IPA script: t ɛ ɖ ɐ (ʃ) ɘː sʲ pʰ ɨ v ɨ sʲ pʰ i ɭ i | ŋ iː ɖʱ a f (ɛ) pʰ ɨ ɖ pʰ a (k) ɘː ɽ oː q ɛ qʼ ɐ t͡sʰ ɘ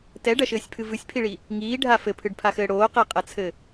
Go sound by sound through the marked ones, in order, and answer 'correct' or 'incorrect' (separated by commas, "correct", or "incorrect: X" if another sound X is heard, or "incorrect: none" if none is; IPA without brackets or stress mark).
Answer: correct, incorrect: ɘ, incorrect: x